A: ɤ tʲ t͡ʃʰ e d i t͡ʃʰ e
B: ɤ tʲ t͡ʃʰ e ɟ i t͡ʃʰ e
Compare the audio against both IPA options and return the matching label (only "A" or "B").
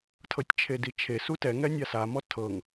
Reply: A